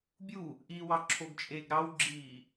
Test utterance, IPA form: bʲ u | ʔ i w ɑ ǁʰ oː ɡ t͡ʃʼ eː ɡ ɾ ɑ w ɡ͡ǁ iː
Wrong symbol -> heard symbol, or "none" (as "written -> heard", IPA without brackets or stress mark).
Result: oː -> o